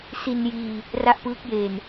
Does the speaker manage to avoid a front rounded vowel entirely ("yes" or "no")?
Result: yes